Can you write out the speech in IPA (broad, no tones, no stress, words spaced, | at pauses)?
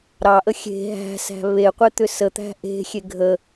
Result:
ɾɑʔə xʲe̤ ɦæ̤sæ̤ βeqʷet̪ʏ sət̪æ̤ ʔe̤xʲe ɡʱə